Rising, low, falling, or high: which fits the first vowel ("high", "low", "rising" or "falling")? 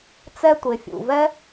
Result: high